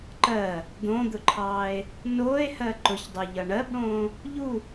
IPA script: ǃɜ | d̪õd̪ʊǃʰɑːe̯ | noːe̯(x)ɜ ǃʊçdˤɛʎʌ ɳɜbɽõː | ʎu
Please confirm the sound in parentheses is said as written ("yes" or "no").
no